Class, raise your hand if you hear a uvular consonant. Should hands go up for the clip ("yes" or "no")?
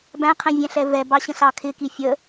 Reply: yes